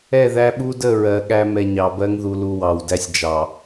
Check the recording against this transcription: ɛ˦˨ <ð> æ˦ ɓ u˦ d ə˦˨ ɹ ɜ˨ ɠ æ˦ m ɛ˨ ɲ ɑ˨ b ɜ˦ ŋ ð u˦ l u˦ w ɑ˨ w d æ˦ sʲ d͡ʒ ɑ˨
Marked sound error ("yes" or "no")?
no